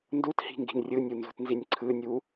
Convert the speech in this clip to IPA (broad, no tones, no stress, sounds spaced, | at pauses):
n d u t h i̤ ŋ ɡ i̤ n rʲ ɯ nʲ u n z ṳ t n z i nʲ ǀʰ ɯ nʲ u